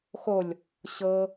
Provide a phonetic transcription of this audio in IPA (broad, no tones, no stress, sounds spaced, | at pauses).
x o lʲ | ɕ ɤ